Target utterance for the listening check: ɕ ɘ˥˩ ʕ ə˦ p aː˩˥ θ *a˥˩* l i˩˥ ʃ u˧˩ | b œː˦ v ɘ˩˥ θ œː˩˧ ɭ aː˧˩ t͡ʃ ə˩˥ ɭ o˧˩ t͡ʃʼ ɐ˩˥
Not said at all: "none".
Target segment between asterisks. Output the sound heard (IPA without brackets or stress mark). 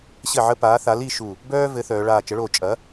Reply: a˩˥